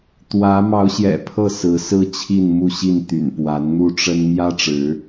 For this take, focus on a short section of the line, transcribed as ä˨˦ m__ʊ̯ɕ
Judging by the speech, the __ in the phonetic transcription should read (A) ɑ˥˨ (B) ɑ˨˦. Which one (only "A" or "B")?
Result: B